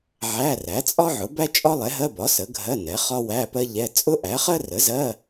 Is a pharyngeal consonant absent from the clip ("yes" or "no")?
no